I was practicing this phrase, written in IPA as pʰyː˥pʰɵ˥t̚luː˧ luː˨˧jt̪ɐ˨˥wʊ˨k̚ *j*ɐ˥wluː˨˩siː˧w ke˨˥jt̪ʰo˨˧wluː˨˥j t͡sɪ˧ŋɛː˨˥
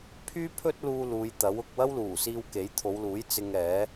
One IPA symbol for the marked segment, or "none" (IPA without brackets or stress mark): w